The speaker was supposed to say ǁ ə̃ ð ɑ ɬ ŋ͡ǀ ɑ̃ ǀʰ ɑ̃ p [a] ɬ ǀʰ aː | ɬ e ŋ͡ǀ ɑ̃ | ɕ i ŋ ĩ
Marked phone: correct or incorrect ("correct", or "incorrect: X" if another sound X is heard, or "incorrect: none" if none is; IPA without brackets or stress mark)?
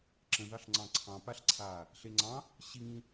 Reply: correct